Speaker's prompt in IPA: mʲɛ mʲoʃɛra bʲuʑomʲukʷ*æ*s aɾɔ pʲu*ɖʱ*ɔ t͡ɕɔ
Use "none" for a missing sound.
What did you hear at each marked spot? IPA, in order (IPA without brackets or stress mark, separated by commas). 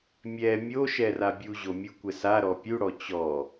ɛ, ɽ